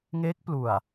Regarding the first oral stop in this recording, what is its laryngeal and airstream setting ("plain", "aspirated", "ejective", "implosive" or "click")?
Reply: plain